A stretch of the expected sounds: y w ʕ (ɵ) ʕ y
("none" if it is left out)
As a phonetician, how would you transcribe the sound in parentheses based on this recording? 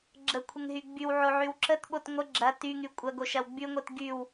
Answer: o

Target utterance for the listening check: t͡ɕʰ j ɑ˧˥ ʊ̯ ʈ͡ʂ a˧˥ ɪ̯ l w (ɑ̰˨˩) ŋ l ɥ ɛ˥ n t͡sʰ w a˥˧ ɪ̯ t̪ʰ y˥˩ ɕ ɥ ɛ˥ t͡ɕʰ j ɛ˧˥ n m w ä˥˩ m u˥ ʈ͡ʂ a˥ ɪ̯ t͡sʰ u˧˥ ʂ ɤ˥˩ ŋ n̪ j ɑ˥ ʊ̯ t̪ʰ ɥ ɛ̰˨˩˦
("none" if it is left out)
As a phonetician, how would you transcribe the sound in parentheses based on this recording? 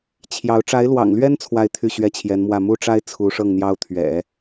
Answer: ɑ̰˨˩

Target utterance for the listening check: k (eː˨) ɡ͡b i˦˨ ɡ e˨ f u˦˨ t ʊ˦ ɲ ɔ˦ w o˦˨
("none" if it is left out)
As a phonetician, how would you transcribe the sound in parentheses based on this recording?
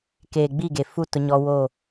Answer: eː˨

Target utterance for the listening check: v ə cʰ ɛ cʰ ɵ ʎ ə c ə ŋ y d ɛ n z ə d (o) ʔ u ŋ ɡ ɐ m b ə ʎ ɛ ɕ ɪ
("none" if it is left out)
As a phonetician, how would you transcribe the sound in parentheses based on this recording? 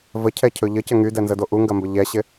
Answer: o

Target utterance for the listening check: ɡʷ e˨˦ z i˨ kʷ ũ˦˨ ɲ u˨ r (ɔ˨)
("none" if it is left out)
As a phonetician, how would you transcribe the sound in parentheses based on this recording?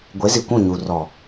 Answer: ɔ˨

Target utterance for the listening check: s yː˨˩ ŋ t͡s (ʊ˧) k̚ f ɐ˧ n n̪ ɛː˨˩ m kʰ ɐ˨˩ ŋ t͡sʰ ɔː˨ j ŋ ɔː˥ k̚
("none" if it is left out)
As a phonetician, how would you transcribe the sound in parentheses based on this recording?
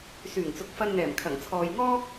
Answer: ʊ˨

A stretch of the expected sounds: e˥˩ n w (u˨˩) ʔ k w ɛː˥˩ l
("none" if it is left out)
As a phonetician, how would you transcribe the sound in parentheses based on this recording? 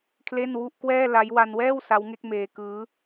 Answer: u˥˩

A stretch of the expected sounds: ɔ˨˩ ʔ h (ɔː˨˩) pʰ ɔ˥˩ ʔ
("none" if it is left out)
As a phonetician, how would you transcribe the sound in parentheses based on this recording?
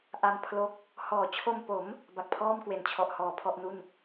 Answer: ɔː˨˩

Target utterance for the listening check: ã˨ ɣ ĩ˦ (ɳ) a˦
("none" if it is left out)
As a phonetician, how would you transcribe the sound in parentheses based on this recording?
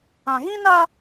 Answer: n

